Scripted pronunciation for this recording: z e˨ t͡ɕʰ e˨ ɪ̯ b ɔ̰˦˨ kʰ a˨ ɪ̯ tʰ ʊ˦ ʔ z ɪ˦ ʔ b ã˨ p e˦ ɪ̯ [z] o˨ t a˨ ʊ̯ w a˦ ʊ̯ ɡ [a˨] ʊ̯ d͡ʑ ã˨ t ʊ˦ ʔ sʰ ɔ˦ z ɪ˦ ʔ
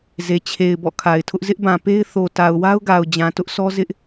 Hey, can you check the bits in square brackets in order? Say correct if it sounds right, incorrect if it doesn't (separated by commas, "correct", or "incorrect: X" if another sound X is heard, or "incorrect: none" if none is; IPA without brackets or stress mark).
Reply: incorrect: θ, correct